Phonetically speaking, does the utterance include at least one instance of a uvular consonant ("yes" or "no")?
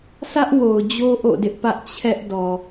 no